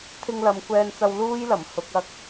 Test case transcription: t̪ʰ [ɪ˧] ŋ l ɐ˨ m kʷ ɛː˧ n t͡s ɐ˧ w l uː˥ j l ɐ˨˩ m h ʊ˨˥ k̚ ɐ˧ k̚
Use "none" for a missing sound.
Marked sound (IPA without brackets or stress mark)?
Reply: ɪ˧